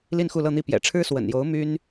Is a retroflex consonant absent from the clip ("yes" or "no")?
no